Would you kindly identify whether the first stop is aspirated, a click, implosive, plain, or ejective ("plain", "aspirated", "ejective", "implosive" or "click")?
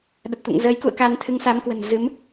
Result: implosive